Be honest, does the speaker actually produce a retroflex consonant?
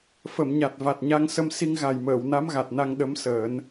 no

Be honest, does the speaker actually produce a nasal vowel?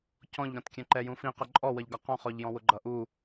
yes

